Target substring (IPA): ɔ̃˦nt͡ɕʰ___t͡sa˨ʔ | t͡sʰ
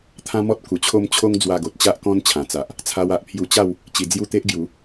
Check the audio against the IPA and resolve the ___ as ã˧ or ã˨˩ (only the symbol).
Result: ã˨˩